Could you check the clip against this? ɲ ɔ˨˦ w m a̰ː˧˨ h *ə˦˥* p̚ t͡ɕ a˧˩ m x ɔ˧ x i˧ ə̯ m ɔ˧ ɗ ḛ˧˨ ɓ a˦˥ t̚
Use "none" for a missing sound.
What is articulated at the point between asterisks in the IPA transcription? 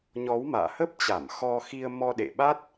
ə˦˥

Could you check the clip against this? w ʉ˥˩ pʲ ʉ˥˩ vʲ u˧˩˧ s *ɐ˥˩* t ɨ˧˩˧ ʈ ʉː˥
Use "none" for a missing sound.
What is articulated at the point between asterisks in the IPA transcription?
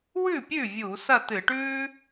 ɐ˥˩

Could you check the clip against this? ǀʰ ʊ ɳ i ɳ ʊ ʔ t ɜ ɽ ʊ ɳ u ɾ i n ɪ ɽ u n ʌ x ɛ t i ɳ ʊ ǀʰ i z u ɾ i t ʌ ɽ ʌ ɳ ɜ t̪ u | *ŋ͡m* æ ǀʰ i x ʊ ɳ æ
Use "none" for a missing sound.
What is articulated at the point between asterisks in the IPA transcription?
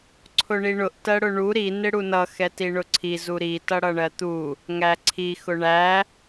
ŋ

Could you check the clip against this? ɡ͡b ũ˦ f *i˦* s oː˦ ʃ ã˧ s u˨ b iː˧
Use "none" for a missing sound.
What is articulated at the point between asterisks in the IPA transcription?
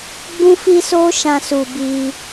i˦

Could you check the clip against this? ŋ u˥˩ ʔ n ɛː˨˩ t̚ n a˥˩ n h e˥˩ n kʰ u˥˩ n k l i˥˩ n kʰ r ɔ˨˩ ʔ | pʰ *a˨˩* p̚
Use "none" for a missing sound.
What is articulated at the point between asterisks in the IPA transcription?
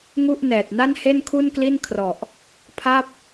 a˥˩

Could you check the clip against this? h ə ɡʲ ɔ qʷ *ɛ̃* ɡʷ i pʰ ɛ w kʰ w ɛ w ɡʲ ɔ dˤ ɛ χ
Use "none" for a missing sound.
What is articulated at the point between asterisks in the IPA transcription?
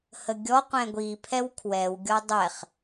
ɛ̃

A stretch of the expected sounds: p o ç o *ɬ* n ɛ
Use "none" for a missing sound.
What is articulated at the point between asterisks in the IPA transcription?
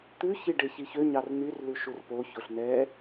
ɬ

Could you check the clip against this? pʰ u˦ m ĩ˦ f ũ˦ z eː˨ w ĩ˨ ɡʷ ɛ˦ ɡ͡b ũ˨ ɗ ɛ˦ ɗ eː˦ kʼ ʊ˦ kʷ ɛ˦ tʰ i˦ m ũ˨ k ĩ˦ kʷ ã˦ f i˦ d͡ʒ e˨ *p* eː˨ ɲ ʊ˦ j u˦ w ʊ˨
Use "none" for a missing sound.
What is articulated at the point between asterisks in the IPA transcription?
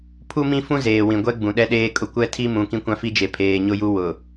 pʰ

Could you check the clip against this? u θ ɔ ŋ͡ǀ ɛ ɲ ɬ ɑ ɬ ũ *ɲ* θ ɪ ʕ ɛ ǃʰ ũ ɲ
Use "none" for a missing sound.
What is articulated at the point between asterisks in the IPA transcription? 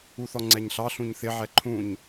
ɲ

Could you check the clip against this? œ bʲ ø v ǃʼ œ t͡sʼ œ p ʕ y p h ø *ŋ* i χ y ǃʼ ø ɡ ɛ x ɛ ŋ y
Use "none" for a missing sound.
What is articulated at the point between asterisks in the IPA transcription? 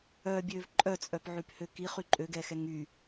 k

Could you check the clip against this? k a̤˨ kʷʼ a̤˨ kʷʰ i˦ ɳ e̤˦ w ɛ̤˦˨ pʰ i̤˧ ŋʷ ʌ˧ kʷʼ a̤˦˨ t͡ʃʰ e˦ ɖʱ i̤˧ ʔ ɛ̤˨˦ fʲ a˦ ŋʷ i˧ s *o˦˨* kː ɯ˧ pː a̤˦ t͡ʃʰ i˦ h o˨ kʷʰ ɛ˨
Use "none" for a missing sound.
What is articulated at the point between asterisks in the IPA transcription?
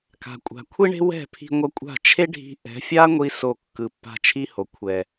o˦˨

